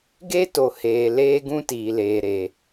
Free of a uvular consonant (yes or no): yes